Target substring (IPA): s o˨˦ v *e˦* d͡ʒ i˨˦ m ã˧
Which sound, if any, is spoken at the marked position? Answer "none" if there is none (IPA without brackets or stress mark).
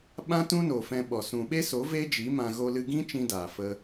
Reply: e˦